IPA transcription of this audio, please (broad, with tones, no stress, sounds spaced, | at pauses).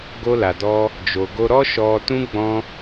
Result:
ɡ o˧ l a˨ d ɔ˧ | d͡ʒ o˨ ɡ o˧ ɾ ɔ˦ ʃ ɔ˧ t ũ˦ ɡ͡b ɔ̃˦